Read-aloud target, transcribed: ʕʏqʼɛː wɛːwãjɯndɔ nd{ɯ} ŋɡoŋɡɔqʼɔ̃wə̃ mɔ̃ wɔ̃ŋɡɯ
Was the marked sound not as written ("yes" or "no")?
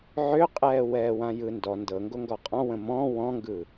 yes